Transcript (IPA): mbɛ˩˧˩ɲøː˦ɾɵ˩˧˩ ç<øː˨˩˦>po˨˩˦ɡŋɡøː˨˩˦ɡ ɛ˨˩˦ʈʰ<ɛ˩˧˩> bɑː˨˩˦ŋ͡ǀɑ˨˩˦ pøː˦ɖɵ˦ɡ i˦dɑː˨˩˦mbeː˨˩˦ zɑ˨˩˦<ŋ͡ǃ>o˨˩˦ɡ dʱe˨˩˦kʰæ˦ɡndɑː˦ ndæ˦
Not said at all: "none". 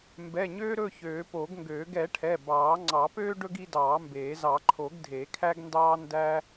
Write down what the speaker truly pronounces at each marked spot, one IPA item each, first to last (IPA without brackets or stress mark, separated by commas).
øː˨˩˦, ɛ˩˧˩, ǃʰ